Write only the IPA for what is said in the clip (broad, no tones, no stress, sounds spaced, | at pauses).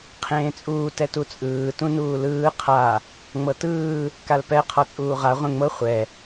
qʰ ẽː t͡sʼ uː t ɛ t u t͡sʼ ɯː t ũ n uː l ɯː qʰ a | ŋ͡m ɤ t ɯː | k a l p ɛ qʰ ɔ t͡sʼ uː ʁ a ʁʷ ẽ ŋ͡m ɤ χʷ ɛ